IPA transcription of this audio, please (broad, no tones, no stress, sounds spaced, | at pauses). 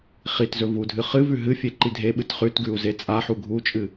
χ i t z ɵ v u dʱ ɨ χ ɨ v ʉ ɦ ɨ fʲ e ǃ i dʱ e ɓ ɨ t χ ʉ t ɡ ʉ u̯ z e t͡sʼ a ħ u ɡʱ u t͡ʃʼ ɨ